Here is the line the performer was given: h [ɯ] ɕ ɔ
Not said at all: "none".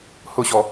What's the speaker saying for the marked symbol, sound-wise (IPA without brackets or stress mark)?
ʊ